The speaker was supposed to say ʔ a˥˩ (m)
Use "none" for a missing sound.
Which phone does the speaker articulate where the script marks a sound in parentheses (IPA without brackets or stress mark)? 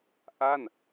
n